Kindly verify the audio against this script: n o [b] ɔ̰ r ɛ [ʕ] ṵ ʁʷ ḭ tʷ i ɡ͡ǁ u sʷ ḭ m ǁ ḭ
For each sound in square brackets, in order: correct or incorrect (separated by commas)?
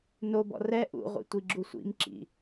correct, incorrect